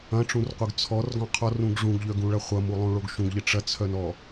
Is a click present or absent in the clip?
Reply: absent